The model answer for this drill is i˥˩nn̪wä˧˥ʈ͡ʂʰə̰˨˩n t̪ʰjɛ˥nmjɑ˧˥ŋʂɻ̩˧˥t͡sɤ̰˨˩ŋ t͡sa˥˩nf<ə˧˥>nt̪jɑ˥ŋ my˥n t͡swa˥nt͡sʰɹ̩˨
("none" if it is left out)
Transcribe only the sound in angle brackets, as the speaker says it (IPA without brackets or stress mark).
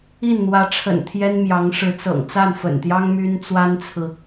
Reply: ə̰˨˩